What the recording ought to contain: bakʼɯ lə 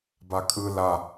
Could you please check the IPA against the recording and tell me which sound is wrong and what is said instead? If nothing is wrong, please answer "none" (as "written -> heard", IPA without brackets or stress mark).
ə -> a